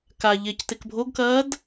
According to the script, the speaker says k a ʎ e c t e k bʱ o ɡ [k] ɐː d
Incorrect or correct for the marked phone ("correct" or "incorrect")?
correct